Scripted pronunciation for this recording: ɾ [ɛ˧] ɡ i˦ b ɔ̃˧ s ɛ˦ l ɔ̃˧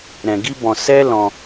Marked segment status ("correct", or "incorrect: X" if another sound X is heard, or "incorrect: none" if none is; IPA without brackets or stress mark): incorrect: ɛ̃˧